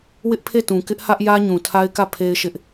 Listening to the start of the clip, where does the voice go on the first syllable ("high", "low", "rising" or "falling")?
high